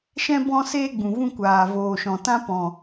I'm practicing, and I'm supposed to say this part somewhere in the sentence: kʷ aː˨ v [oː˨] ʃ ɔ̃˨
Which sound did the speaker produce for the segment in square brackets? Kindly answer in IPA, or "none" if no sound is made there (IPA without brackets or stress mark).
oː˨